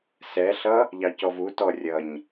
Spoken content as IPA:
s ɛ ɬ ʌ | ʎ ɑ c ɔ v u t ɔ rʲ ʌ ɲ

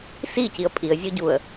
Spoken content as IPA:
s i c i ə̯ pʼ i ə̯ zʲ o ɟ u ə̯

